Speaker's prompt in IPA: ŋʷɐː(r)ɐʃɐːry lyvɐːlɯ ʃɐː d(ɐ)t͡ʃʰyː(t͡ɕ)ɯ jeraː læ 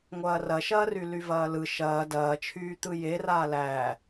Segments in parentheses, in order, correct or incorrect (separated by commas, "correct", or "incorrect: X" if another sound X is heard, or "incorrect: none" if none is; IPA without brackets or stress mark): correct, incorrect: ɐː, incorrect: t̪